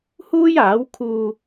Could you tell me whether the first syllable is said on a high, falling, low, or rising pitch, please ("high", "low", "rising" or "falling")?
high